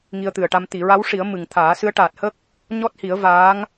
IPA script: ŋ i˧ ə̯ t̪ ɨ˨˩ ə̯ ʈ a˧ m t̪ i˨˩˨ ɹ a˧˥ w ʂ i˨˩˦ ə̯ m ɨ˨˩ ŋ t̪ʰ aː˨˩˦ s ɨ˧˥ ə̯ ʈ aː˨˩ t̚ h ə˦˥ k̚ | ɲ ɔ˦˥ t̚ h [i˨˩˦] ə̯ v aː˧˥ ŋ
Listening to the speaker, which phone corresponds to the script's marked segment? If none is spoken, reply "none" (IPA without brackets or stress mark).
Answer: i˨˩˦